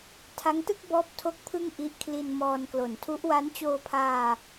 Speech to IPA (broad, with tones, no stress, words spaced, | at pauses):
tʰa˦˥ŋtɯ˥˩k̚ bɔː˥˩p̚ tʰo˥˩k̚pʰɯ˥˩ŋ ʔi˦˥ʔkʰli˧n mɔː˧n klo˩˦ntʰu˦˥ʔ wa˦˥nt͡ɕoː˧pʰaː˧